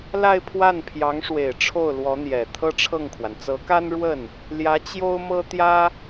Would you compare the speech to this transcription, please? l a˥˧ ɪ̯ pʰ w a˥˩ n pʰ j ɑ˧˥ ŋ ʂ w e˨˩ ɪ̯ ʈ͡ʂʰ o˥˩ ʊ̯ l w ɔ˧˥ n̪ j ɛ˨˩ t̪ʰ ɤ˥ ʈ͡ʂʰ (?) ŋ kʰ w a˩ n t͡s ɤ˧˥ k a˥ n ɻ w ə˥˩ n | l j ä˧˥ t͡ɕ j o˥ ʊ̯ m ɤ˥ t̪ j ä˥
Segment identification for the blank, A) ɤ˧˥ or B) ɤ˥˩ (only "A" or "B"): B